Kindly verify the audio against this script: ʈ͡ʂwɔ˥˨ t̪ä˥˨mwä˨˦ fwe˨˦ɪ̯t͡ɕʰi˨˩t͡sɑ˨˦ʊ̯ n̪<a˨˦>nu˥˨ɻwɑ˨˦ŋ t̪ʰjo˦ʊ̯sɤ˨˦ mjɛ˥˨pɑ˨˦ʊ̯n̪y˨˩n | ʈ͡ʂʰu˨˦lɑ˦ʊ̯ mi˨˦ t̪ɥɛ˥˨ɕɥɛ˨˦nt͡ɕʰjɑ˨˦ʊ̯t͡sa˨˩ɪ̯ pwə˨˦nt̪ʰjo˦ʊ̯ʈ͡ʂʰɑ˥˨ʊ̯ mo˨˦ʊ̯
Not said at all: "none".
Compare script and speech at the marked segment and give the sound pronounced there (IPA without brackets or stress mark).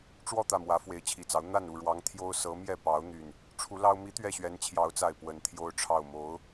a˥˨